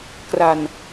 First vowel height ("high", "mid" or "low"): low